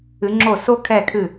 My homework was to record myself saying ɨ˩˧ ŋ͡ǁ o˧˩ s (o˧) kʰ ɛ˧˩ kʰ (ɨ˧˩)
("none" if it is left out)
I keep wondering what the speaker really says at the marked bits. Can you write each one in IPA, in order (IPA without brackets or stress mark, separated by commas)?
o˧, ɨ˧˩